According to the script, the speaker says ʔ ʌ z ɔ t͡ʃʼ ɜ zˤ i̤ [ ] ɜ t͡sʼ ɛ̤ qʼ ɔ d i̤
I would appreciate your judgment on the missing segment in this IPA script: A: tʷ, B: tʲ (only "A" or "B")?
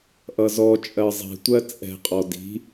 A